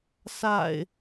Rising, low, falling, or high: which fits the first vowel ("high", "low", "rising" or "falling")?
low